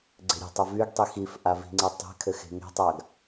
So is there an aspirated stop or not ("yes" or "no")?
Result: yes